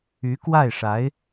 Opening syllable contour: rising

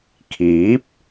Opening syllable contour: rising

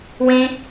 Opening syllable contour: high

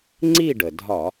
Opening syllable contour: falling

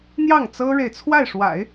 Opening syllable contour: falling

